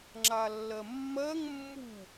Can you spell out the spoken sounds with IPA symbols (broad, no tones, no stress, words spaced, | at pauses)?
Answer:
ŋ͡ǁalːɜmːɜŋ mːu